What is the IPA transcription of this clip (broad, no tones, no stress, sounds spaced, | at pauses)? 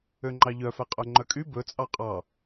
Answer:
ø ŋ͡ǃ ɑ ʎ œ f ɛ qʼ œ ŋ͡ǃ œ kʼ y b ɵ t͡sʼ ɑ qʼ ɑ